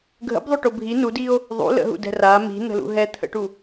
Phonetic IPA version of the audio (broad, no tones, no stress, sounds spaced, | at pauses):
ɡʱ ə̰ b ðˤ o ʈ o bʱ i n u d i o̯ | ðˤ ṵ l ə̰ ɦ ṵ d ɛ̤ r a m i̤ n̪ ə̤ l ṵ ɦ ɛ t̪ʰ ə̰ ʈ u